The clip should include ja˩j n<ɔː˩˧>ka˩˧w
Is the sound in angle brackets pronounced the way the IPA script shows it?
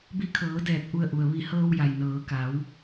no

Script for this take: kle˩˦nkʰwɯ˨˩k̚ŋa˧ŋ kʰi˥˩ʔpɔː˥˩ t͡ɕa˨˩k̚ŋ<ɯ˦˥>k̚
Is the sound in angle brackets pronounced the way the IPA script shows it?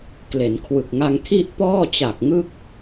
yes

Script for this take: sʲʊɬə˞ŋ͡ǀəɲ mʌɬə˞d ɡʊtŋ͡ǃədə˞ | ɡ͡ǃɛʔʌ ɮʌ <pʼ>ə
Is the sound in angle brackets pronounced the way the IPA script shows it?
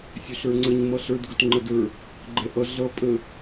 yes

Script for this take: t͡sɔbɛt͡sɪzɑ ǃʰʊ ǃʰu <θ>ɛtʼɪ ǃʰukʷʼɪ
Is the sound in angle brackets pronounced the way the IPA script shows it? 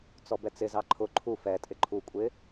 no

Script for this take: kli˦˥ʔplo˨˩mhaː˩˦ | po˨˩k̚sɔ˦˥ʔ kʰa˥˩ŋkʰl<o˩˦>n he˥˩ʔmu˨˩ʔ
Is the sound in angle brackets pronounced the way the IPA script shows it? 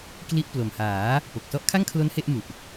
no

